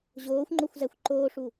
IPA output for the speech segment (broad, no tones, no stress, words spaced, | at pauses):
ʑoːxʷŋ͡ǃoxʷzæxʷ ǃoːʂu